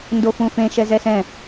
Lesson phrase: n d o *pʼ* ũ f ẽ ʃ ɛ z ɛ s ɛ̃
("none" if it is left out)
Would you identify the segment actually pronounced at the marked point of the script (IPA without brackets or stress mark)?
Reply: f